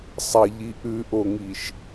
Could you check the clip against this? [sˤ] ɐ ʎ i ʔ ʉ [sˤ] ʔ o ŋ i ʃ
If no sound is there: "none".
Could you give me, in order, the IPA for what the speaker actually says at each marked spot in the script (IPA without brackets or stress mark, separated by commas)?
sˤ, none